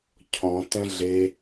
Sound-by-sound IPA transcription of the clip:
cʰ ɔ̃ t ɛ̃ ɮ e

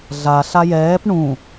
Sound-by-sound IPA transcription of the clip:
ɮ a ɬ a j ɛː p ɳ ũ

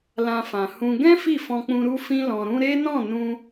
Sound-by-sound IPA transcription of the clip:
l ã˧ f ã˨ h ũ˧ ɡ ɛ̃˦ f i˦˨ f ɔ̃˧ k͡p ũ˧ ɾ u˧ f ĩ˧ l ɔ̃˨ ɾ ũ˧ ɾ e˦ n ɔ̃˦˨ n ũ˧

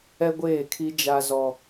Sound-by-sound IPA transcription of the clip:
ɛ˦ ɡʷ eː˦˨ kʰ i˦ d͡ʒ a˦ z ɔ˦

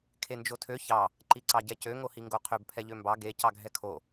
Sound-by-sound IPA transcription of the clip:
kʰ e n d͡ʒ o tʰ ø ç ɑ | ǃ i ǀ ɑ ɟ ɛ c ø ŋ o h i ŋ ɡ o qʰ ø b pʰ ɛ ʎ ø m b ɑ ɡ e c ɑ ɡʱ ɛ kʰ o

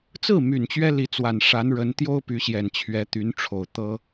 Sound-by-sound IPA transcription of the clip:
t͡s ɹ̩˥˩ m y˨˩ n t͡ɕ ɥ ɛ˥ l i˧˥ t͡s w a˨˩ n ʂ a˧˥ n ɻ ə˧˥ n t̪ j o˥ ʊ̯ p y˧˥ ɕ j ɛ˨˩ n t͡ɕʰ ɥ ɛ˧˥ t̪ y˧˥ n ʈ͡ʂʰ o˨˩ ʊ̯ t̪ ɤ˥

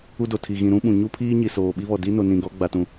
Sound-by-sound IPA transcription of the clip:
u˦ d o˨ tʰ i˨ ɣ ĩ˨ ɾ ũ˦ ɓ ũ˨ ɲ u˦ pʰ iː˦ ɲ i˨ s oː˨ ɓ i˦ β ɔ˨ d i˦ n o˨ n ĩ˨ ɡ ɔ˨˦ ɡ͡b a˨ t ũ˨

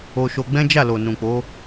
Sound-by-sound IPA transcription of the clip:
o˧ ʃ o˧ ɡ͡b ɛ̃˦ d͡ʒ a˦˨ l o˨ n ũ˨ k͡p o˨˦

